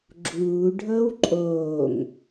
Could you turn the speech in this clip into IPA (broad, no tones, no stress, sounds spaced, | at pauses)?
ɡ͡ǁ uː ɖʱ ɤ w ǃʼ oː ŋ